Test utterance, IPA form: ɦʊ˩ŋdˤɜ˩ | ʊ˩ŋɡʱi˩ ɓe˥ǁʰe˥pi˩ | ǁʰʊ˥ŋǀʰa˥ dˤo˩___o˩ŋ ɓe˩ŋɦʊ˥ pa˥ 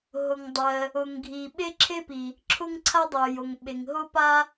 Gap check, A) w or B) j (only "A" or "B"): B